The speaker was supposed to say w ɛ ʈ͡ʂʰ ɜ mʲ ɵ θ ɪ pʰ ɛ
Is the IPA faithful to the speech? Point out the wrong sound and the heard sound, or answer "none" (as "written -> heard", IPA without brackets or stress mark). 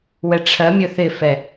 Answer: pʰ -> f